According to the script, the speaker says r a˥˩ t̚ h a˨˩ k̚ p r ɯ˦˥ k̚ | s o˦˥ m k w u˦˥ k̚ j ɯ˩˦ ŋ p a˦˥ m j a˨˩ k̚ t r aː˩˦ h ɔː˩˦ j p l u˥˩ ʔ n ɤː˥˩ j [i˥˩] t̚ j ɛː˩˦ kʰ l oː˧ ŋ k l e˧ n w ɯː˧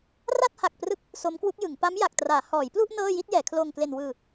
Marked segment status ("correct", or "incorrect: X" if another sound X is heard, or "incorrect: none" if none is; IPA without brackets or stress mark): correct